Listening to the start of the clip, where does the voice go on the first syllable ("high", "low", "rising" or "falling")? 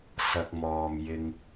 low